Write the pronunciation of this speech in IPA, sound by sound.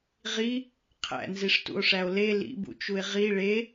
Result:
ʁ i | qʰ æ̰ n z i ʂ t ṵ o̯ ʂ æ o̯ l e l ḭ b ṵ t͡ʃ u e̯ ʁ i ɭ e

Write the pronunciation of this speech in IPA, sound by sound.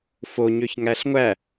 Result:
f o ɲ ø ç ŋ æ ɬ ŋʷ æ

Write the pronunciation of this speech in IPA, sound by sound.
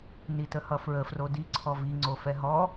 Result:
n i t ə h ʌ f ɹ ə f r o d i ǀʰ ɔ v i ŋ͡ǀ o f ɛ ɦ ɔ

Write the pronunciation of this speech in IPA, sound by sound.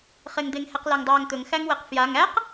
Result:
χ e ŋ d̪ e ŋ h ɛ q l æ ŋ dˤ aː ŋ t̪ ɵ ŋ x æ ŋ w ɛ q f j a ŋ æ q

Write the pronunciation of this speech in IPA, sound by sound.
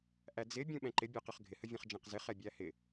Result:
ʔ æ d͡z ɪ bʲ ũ ɓ ɛ̃ ǃ ɪ bʲ ɒ q ə χ ɡʱ ɪ h ə vʲ ɛ̃ χ d͡ʒ ɛ̃ q z ɪ χ ɛ bʲ æ h ɪ

